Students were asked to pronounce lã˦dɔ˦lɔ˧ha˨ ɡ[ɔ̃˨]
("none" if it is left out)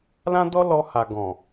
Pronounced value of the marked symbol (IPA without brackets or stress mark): ɔ̃˨